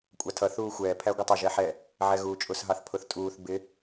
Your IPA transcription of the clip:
kʷʼ ɑ tʰ ʌ θ uː xʷ ɛː pʰ æ ɡʷ ɪ tˤ ʊ ʒ ɛ ħ ɛ | ʕ ɛ ɣ uː t͡ʃʼ ʊ s ɦ ɑ θ pʰ ʊ θ tʼ uː θ b ɪ

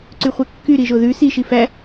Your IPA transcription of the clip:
ǀ y χʷ ɛ kː y ɾ i ʒ o ð ʉ s i ʃ i f æ

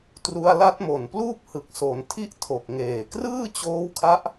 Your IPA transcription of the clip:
t r u˧ a̯ l a˦˥ t̚ m o˨˩ n p l uː˥˩ p̚ h ɯ˨˩ k̚ s o˩˦ n tʰ i˥˩ ʔ tʰ o˨˩ k̚ ŋ eː˨˩ k r ɯː˥˩ t͡ɕ oː˦˥ w kʰ a˦˥ ʔ

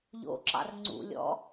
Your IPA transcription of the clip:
ʎ o̰ ǁ ɑ̰ r ŋ͡ǀ ṵ lʲ ɔ̰

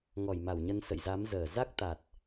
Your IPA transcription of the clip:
ŋ ɔ˧˩ j m a˧˩ w ɲ ə˧ n s ə̰˧˨ j z a˨˦ m z əː˧˩ z a˦˥ k̚ t̪ a˨˩ t̚

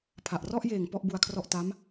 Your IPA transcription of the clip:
pʰ a˨˩ ʔ r ɔ˥˩ ʔ j eː˨˩ ŋ p ɔ˥˩ ʔ b u˧ a̯ kʰ r ɔ˥˩ ʔ t a˦˥ m

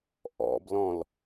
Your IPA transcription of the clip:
ʔ ɔ̰ b l ɔ̃ l

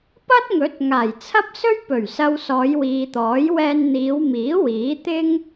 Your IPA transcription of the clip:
p ɐ˥ t̚ ŋ ɵ˨˥ t̚ ŋ aː˨˩ j t͡sʰ ɐ˥ p̚ s ɵ˥ ɥ p ɵ˨˩ ɥ s ɐ˨ w s ɔː˨˧ j w iː˨ t̪ ɔː˨˥ j w ɛː˧ n n̪ iː˨˧ w m iː˨˥ w iː˨˥ t̪ ɪ˥ ŋ

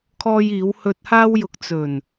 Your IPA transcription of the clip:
kʰ ɔː˧ j iː˨˧ w h ɵ˧ t̚ h aː˥ w j ʊ˧ k̚ t͡s ɵ˨˩ n

